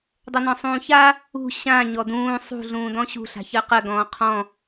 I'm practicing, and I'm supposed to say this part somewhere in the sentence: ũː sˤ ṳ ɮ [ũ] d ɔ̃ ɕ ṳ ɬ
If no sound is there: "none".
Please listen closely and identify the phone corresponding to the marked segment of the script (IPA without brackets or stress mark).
ũː